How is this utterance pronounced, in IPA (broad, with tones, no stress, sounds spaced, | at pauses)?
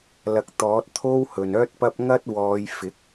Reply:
l ɐ˨˥ k̚ t̪ ɔː˨˥ t̚ t̪ʰ o˥ w h ɵ˨ n œː˥ t̚ p ɐ˥ p̚ ŋ ɐ˥ t̚ w ɔː˨˧ j f ɪ˨˥ k̚